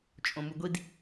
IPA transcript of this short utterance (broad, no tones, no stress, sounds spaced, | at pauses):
t͡ʃʼ õ m u ɡʷ i d